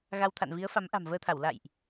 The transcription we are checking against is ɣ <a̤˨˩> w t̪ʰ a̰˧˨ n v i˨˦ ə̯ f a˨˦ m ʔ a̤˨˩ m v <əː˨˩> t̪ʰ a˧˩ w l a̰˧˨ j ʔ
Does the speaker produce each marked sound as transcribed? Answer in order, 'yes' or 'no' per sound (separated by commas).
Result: no, no